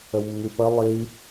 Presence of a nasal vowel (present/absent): absent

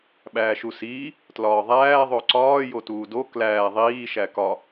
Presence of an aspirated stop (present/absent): absent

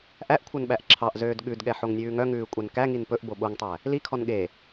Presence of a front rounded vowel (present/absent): present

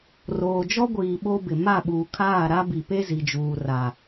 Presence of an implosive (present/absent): present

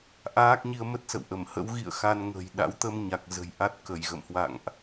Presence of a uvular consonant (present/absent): absent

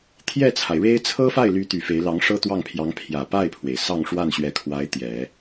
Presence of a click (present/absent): absent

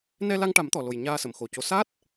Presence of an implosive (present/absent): absent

